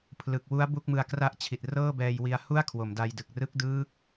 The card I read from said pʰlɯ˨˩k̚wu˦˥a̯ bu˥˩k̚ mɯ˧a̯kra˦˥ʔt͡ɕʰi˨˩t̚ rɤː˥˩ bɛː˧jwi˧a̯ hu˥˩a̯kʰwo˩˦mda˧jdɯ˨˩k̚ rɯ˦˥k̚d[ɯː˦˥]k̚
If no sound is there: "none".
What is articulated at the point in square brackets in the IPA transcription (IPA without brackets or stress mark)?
ɯː˦˥